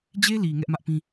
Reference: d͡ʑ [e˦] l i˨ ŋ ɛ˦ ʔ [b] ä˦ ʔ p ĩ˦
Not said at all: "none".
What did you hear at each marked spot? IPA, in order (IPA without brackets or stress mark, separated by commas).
e˦, m